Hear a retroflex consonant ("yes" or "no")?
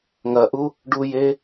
yes